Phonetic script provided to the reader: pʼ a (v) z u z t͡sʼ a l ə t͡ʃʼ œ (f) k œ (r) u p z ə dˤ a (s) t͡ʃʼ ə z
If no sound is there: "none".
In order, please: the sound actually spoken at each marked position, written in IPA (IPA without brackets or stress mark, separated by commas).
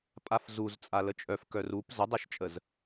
f, f, r, ʃ